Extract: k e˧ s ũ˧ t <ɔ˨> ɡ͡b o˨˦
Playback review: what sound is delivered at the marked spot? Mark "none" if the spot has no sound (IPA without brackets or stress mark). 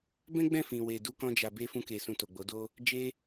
o˨